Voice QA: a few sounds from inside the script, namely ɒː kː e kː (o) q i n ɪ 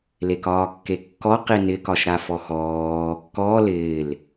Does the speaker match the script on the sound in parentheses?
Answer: no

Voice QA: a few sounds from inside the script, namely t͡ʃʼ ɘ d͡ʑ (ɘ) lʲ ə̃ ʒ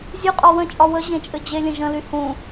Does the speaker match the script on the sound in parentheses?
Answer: no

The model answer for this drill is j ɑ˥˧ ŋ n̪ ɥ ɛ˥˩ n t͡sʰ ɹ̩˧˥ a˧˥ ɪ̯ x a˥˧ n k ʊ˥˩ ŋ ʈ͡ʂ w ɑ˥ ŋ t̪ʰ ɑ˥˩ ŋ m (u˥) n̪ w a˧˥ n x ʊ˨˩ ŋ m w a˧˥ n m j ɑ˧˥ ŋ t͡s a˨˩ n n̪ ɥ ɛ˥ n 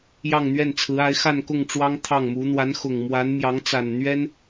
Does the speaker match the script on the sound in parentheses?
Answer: no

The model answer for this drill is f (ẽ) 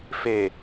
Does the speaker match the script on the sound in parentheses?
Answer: no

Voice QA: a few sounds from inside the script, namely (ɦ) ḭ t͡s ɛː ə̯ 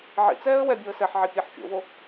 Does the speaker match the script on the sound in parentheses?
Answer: no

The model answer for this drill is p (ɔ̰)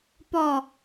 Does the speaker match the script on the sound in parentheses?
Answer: no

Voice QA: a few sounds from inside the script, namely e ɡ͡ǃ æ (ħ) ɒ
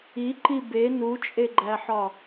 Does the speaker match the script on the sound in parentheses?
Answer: yes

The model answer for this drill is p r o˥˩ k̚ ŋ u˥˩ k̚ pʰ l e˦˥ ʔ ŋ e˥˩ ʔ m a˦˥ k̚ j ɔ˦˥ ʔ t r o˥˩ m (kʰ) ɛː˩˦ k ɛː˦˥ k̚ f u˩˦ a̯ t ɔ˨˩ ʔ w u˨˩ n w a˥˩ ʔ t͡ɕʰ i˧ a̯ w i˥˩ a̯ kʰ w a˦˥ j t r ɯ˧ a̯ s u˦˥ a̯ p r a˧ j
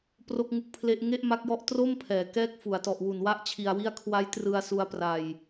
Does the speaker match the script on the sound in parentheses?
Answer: no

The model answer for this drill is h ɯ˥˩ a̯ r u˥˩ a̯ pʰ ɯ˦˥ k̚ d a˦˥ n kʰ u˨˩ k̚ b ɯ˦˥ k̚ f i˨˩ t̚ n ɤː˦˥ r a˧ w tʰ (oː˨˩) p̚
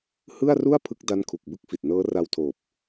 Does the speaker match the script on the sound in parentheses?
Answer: yes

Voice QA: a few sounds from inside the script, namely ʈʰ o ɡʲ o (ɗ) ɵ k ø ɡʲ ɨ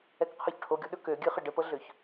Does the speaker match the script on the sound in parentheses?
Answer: yes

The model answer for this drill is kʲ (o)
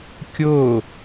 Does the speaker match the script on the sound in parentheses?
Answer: yes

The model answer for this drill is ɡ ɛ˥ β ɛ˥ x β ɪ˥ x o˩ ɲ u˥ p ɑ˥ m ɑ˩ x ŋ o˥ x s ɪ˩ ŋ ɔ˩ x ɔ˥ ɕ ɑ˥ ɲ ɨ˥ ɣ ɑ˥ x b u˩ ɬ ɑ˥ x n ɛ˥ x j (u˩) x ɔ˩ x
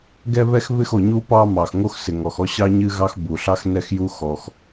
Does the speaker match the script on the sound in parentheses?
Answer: no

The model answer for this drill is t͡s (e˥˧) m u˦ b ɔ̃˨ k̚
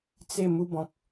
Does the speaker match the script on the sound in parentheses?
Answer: yes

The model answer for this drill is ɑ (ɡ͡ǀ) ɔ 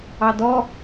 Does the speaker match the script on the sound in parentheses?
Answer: no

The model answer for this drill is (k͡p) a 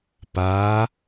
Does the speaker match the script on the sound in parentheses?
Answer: no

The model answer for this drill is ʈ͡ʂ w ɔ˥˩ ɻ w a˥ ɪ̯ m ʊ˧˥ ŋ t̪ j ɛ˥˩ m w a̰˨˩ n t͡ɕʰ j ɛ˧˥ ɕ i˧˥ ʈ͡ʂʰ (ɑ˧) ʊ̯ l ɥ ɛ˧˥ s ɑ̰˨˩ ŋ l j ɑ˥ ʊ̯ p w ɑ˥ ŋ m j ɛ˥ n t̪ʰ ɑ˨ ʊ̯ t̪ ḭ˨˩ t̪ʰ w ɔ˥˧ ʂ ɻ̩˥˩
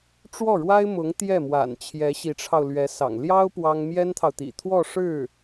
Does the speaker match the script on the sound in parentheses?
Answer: yes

